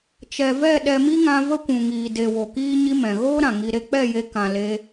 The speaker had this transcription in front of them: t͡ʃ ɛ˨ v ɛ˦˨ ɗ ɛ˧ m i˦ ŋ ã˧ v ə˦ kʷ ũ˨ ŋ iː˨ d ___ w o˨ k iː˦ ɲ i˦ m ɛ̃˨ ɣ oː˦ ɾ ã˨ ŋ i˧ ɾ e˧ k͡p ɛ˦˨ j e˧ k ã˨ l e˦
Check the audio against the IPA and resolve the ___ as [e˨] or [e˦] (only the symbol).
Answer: e˨